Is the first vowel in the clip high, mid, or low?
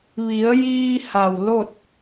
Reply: high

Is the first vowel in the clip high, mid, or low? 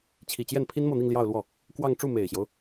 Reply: high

